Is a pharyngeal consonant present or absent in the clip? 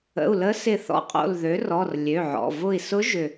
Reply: present